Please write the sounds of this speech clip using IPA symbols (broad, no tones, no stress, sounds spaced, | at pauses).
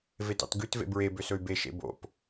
v e t ɑ̰ t ɡ ʉ t v ḛ b ɹ e b ø s ɵ y̯ b e ʃ ḛ b o̰ p